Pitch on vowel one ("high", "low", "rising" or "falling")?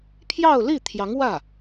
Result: falling